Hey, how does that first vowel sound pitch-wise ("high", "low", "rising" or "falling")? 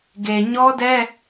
low